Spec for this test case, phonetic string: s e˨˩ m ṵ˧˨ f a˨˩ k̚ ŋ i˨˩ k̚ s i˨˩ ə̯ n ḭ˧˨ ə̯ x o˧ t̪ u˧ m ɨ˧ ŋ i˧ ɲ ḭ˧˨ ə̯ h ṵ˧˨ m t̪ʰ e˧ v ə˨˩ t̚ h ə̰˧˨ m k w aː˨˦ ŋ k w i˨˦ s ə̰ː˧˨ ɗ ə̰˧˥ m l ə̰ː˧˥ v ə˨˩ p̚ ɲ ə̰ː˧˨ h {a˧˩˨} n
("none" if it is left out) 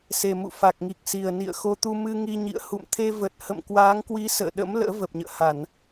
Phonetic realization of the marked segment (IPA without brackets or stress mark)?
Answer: a˧˩˨